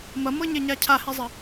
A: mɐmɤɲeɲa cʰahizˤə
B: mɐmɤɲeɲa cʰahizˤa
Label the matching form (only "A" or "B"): A